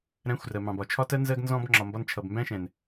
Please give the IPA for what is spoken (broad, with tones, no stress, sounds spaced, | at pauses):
ɾ æ̃˨˦ xʷ r ɜ˨ m ɑ̃˨ b ɒ˨ t͡ʃʰ ɒ˦ t ɜ˦ n z ɜ˧ ɡ n z ɔ̃˧ b ŋ͡ǁ ɒ˧ m b ɒ˦ n t͡ʃʰ ʌ˧ b m b æ̃˦ ʃ ɛ̃˨ n